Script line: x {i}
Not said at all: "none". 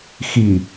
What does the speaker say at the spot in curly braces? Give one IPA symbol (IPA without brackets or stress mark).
i